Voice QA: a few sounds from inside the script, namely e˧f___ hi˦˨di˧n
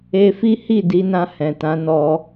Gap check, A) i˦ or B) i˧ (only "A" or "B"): A